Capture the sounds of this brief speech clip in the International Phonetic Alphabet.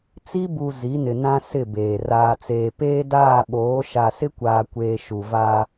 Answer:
t͡si˦bu˨ zi˨˦nɪ˨nã˦ sɪ˦˨beː˨ raː˨t͡seː˨peː˦ daː˦˨ɓoː˨˦ ʃa˨sɪ˦kʷaː˨kʷeː˨ ʃu˨va˦

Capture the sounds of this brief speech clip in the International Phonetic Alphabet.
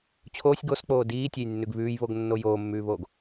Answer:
t͡ɕʰoːsʲ ɡosk͡poː diːtʲejnːʉɡ βʉːjβoɡnːo joːmːʉːβoːɡ

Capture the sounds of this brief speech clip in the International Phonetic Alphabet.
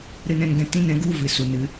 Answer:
ɾɨ˧nɛ̃˧n ɡɛ̃˧tĩ˦˨nɛ̃˦ɡu˦˨ vɨ˨ su˨ nɨ˨˦

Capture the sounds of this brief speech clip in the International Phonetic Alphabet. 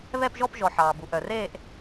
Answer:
βɛ˥˧pʒɔ˥˧pʒɔ˨ ħɑː˨bu˨ʔœ˨r eː˥˧ʔ

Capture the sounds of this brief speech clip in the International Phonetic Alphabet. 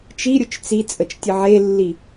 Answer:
t͡ʃiɾʲʊt͡ʃ t͡si t͡sʼət͡ʃtʲəʕelːi

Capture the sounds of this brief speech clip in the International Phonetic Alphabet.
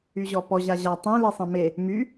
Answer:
yʑɔpɔʑa ʑa tˤẽ lesˤɛ̃me | my

